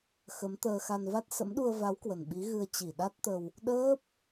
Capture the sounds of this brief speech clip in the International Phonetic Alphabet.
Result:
x ə˨˦ m t̪ əː˧ x a˧ n v a˦˥ t̚ s ə̰˧˥ m ɗ u˧ ə̯ v a˨˦ w k w ə˨˩ n ɓ i˨˦ ɣ ɨ˧ ə̯ t͡ɕ i˧˩ ɗ a˦˥ t̚ t̪ ə˧ w | ɗ əː˦˥ p̚

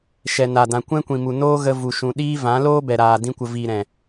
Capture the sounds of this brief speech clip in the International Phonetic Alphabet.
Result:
ʃ ɛ˨ n a˨ d ã˨ kʷ ɛ̃˦ kʷ ĩ˨ m u˨ n oː˦ ɣ ə˧ v u˨ ʃ ũ˨ ɗ iː˦ v ã˨˦ l oː˦ b ɛ˨ ɾ aː˨ d ĩ˧ kʷ ə˨ v iː˨ ɾ ɛ̃˨

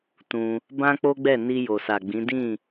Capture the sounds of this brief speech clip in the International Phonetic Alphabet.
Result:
t ũ˧ | b ã˦ k͡p o˦ ɡ͡b ɛ˦˨ n i˧ j o˨ s a˨ ɡ͡b ĩ˨˦ d ĩ˦˨

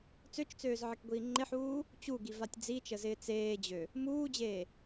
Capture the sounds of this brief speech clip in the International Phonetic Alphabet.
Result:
t͡s ø t͡ʃ t͡s øː z ʕ ɪ k ɡʷ iː ŋ͡ǃ ɪ ħ uː | t͡ɕ u ɡ i v a tʲ d͡z i t͡ʃ ə z ɪː t͡s eː d͡ʑ ø | m uː d͡ʑ eː

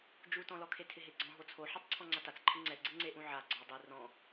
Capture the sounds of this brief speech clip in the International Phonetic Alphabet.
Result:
d͡ʒ u t ɔ̃ l ɔ kʰ e tʰ ɪ ɦ e ɡ͡ǀ ɔ̃ ɦ o t͡sʰ o ħ ɔ tˤ ǀʰ ɔ̃ ŋ͡ǀ a t a t͡s ǃʰ ɪ ŋ͡ǀ ɛ ɡ͡ǀ ɪ ŋ͡ǀ e ʔ ũ ʕ a ɡ͡ǀ ɔ dˤ i r ɔ̃

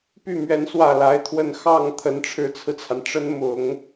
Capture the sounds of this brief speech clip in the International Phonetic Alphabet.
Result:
p y˥˩ m ɥ ɛ˧˥ n s w ä˥˩ l a˧˥ ɪ̯ t̪ʰ w ə˥˧ n x ɑ˥˩ ŋ t̪ʰ ə˧˥ n ʈ͡ʂʰ ɻ̩˧˥ t͡sʰ ɹ̩˧ t͡sʰ a˩ n ʈ͡ʂ ə˧˥ n m ʊ˨˩˦ ŋ

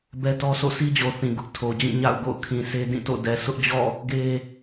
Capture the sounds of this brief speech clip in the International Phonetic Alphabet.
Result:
b ɛ˦ t ɔ˦ sʰ o̰˦˨ s i˦ d͡ʑ o˨ θ ĩ˨ ɡ ʊ˦ ʔ tʰ o˨ d͡ʑ ĩ˦˨ ɲ a̰˦˨ ʊ̯ ɡ o̰˦˨ ʊ̯ kʰ ĩ˨ sʰ e˦ d ĩ˦˨ t o̰˦˨ d ɛ˨ s ʊ˦ ʔ d͡ʑ ɔ̰˦˨ | ɡ e˦

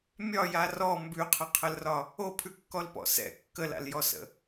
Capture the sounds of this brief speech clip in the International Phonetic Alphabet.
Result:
mʲ ɒ j a r ɔ m b ʉ qʰ ə qʰ ə l r ɒ | o pʰ ʉ kː ɔ l p ɔ̰ s ɛ̰ kː ə l a̰ l j ɔ s ə̰

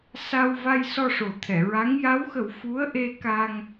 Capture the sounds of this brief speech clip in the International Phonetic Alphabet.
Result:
s a˧ w v a˧ j s ɔ˧ ʂ o˨˩ t̪ʰ ɛ˨˩˨ ɹ a˧˥ ŋ j a˧˥ w x ə˨˩˦ w f u˧˥ ə̯ ʔ e˧ k a˧ ŋ

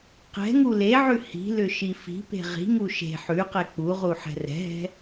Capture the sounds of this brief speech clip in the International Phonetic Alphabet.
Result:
q ɛ̤ ŋ u l e ʕ ʉ h i̤ l ʏ ʃ i f i̤ p e̤ ʁ i̤ ŋ u ʃ e̤ ħ ʉ q ɛ k͡p u ʁ u ħ ɛ̤ r ɛ̤ ɦ ɛ̤

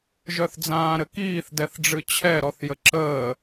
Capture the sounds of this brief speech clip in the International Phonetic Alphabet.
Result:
ʒ œ θ d͡z ãː ɾ ɘ k iː θ d ɛ θ ɖ͡ʐ ɨ t͡ɕʰ ɛ ɾ ɔ θ j ə ǁ əː

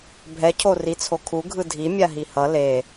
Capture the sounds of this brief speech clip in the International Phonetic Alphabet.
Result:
bʱ ɛ cʰ o r i t͡sʰ o kʰ u ɡʱ ɯ dʱ i mʲ a ɦ i h ʌ l e

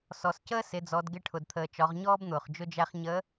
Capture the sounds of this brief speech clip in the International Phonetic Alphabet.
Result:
s ɔ˩ s c əː˥ s ɪ˩˧ d͡z ɔ˩˧ d ɡ ɪ˧ ʈʰ ʊ˩ d t̪ʰ əː˩ t͡ʃ ɒ˩˧ ʁ ɲ ɔː˥ b n̪ ʊː˩ χ d͡ʒ ʊ˧ d͡ʒ æ˧ χ ɲ əː˧˥

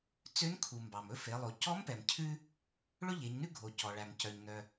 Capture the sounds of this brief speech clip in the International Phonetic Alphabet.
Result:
t͡s ø˧˥ n kʰ u˩ m b ɑ˩ m ɵ˧˥ f e˩˧ lˠ o˩˧ c ɔ˧˥ m p ɛ˩ m cʰ ʉ˧ | ɭ ɵ˥ ʎ e˩˧ ɲ n ʉ˥ ɡʱ o˩ c ɔ˩ ɭ æ˩ m c œ˩ ɲ n œ˩

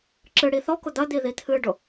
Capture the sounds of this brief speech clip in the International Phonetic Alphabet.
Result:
ǁ ɨ ɽ i θ ɔ k ʊ d̪ ɐ d̪ i ð i t̪ʰ ɨ ɖ ʊ

